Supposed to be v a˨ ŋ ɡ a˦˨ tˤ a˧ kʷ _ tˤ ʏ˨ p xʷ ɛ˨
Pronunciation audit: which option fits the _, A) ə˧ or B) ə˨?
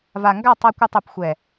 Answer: A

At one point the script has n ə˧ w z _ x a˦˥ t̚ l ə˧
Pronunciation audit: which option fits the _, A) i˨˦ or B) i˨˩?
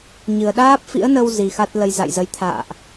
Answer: B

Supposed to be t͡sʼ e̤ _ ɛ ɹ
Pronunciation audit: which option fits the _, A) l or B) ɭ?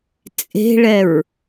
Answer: B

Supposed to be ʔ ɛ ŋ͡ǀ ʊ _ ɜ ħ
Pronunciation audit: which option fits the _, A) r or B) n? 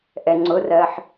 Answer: A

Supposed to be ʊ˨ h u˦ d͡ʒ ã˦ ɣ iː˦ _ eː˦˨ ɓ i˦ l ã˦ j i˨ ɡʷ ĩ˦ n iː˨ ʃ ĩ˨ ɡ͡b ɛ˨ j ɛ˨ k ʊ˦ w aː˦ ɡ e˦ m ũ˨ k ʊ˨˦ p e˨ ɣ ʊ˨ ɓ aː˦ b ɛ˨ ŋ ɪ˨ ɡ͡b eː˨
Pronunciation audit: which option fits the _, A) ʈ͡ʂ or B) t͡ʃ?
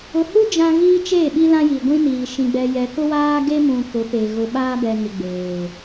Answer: B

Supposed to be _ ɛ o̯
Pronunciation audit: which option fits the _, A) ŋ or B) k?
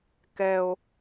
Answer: B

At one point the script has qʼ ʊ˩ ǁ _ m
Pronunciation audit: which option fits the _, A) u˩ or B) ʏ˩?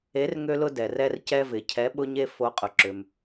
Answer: B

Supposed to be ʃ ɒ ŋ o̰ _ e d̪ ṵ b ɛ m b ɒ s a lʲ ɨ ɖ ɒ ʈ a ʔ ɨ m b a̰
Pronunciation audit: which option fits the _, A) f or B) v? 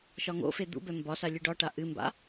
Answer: A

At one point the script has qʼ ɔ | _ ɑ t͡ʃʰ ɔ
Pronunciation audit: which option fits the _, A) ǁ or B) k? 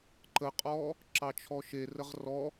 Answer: A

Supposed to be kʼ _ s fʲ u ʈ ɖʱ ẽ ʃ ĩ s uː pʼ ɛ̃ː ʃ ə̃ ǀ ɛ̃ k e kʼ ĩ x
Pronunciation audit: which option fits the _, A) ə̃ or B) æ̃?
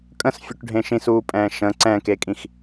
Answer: A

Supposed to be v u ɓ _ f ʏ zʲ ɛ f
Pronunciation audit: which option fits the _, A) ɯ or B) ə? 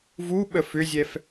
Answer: B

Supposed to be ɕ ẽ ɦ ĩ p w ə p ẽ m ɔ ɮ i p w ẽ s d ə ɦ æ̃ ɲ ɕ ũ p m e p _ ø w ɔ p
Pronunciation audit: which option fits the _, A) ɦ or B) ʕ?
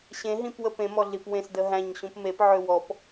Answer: B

